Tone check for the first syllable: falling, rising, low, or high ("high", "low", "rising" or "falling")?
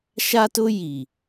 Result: high